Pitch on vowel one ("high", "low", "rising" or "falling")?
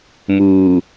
low